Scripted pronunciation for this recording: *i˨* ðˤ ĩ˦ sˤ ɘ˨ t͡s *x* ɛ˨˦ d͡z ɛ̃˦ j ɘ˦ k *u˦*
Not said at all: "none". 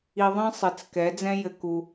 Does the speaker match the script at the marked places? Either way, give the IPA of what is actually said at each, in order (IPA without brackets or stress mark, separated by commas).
i˨, k, u˦